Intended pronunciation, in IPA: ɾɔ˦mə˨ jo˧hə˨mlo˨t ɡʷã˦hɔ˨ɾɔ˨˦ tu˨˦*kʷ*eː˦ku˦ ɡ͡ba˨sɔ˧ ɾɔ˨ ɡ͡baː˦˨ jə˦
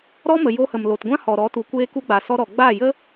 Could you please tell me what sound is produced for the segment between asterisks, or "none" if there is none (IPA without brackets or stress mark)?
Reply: kʷ